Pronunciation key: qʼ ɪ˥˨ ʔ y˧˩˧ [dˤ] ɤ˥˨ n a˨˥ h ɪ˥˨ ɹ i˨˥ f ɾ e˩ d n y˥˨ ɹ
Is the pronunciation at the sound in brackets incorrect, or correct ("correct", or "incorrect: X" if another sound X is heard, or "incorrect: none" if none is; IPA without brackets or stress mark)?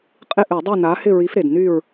correct